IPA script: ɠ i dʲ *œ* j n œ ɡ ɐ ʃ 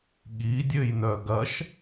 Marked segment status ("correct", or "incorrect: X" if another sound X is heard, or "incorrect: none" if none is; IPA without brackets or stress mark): incorrect: ø